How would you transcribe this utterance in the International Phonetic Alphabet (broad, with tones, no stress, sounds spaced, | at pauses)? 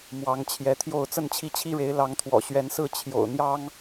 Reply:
m w ɑ˨˦ ŋ t͡ɕʰ j ɛ˨˦ t̪ʰ j o˥˨ ʊ̯ t͡s ə˥˨ n t͡ɕʰ i˥˨ t͡ɕʰ i˦ ɻ e˨˦ ɪ̯ l ɑ˨˦ ŋ t̪ʰ w ɔ̰˨˩ ɕ ɥ ɛ˨˦ n s ɹ̩˥˨ t͡ɕʰ j o̰˨˩ ʊ̯ n̪ j ɑ˦ ŋ